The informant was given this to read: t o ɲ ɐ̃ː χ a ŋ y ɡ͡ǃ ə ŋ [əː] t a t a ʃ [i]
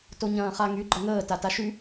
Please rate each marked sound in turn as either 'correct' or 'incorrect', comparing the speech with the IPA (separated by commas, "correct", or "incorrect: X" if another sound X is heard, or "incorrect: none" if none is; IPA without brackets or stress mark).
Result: correct, incorrect: y